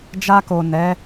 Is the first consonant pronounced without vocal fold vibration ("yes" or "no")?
no